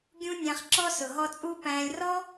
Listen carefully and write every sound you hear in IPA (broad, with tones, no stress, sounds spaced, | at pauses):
ɡʲ ũ˦ nʲ æ̃˧ χ ǁ ɔ˦ s ʊ˨ ɦ ɔ˦ t͡sʼ u˦ p æ̃ː˧ lʲ r ɔ˦